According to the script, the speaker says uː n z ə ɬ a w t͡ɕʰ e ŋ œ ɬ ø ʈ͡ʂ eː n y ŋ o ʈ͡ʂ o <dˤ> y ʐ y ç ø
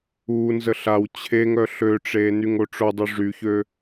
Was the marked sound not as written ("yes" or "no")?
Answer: no